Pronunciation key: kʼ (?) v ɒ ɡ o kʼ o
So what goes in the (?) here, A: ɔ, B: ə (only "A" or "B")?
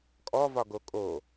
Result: A